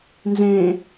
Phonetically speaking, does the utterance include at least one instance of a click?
no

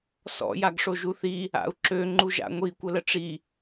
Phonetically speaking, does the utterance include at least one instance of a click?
yes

